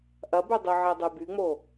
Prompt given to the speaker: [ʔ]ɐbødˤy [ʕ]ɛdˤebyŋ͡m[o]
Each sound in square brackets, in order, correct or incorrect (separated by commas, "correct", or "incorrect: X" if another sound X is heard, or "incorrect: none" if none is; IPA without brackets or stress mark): correct, correct, correct